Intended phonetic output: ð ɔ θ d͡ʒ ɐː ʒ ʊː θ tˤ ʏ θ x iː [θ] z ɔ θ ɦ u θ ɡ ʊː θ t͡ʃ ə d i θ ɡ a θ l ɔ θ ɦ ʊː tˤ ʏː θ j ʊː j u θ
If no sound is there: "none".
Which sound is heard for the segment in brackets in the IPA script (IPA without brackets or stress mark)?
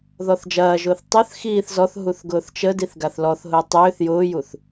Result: θ